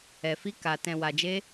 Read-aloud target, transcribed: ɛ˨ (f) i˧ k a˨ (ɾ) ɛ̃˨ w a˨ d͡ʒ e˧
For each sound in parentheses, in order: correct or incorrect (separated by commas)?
correct, incorrect